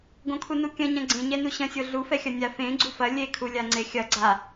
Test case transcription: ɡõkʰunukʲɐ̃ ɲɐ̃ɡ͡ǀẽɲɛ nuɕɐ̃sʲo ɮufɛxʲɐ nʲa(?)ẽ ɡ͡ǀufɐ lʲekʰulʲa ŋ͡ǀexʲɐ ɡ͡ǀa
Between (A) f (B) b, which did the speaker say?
A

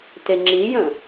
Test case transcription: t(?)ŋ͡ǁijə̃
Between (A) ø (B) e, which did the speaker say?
B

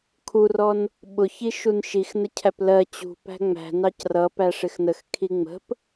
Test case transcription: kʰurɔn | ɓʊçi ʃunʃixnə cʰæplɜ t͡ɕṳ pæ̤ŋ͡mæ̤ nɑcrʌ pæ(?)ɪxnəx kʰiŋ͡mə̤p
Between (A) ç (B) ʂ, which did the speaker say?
B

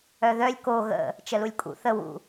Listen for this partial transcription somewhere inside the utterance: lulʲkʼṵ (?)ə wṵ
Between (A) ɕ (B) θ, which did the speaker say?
B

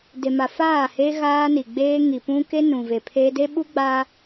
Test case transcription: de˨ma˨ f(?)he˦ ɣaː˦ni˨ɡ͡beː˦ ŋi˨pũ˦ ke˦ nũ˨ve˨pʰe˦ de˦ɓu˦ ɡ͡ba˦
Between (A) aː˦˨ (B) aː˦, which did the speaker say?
A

